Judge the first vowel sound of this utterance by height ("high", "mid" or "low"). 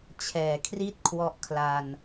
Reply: mid